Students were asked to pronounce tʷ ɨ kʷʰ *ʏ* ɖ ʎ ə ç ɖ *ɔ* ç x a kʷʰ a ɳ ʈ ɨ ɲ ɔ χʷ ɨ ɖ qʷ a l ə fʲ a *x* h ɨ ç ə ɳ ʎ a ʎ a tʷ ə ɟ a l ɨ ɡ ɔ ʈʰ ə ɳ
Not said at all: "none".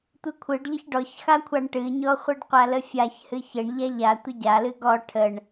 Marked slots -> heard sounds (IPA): ɨ, ɔ, ç

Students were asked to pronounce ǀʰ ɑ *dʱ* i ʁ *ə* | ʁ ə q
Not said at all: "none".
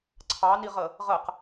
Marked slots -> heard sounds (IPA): n, ə

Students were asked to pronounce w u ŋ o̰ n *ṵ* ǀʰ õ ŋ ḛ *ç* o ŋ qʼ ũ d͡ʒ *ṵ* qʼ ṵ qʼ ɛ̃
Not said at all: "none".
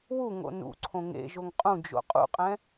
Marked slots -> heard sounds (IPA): ṵ, ʒ, o̰

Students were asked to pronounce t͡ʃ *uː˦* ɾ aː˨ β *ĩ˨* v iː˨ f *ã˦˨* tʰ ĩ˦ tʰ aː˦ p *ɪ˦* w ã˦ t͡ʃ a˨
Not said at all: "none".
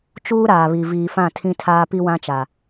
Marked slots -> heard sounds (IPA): uː˦, i˨, ã˦˨, i˦

